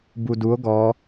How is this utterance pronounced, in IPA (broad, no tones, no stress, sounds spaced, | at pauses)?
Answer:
b u d u o̯ ɡ ɔ